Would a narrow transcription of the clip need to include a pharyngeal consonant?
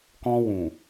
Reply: no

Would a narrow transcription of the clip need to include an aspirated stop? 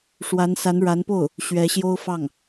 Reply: no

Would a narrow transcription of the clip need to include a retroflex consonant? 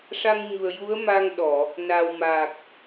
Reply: yes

